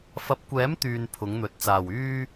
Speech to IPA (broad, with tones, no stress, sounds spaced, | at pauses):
f ɐ˨˥ p̚ kʷ ɛː˨˥ m t̪ yː˨ n pʰ ʊ˨˥ ŋ n̪ ɵ˨ t̚ t͡s aː˨˩ w yː˥